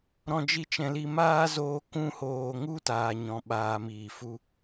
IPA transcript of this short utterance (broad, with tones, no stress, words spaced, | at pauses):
ɾɔ̃˦d͡ʒi˦t͡ʃɛ̃˧li˦ maː˦zoː˧ kũ˧hoː˨ŋu˦ taː˧ɲɔ̃˨˦ ɓaː˧miː˨ fu˦